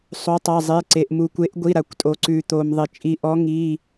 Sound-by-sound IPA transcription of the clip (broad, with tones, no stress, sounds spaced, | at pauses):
sˤ o˩˥ tˤ a˩˧˩ zˤ e˩˧˩ ǀ e˩ ʔ m u˩ kʷ e˩˥ ʔ ɡʷ i˩˧˩ ɾ a˩ kʷ tʼ o˩ ǀ ʉ˩ t̪ o˩ m ðˤ e˩ t͡ʃʼ i˩˥ ʔ ɔ˩˥ ŋ i˩˧˩